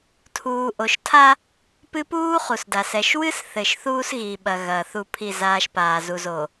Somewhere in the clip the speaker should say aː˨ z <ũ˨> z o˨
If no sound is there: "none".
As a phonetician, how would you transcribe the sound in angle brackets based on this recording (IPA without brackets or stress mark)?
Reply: u˨